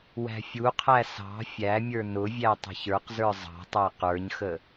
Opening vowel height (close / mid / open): open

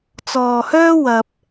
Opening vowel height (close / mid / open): mid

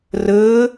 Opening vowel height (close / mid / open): mid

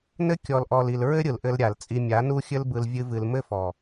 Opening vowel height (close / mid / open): mid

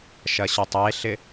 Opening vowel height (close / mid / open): open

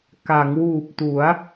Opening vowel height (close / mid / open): open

